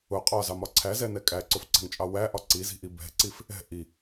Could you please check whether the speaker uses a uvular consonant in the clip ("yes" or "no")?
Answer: yes